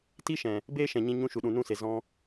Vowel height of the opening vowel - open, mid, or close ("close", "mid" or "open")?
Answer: close